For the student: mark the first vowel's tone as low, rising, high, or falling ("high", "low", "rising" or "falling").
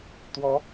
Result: rising